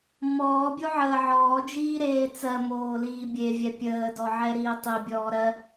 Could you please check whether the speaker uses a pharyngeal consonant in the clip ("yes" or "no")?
yes